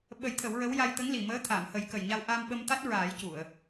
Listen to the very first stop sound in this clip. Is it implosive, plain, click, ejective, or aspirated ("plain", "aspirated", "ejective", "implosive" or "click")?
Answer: implosive